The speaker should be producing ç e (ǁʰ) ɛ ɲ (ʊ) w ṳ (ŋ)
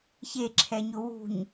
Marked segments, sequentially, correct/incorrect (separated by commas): correct, correct, incorrect